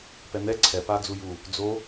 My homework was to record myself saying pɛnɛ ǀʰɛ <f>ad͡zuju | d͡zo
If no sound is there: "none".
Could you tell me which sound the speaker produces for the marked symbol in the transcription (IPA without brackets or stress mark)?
p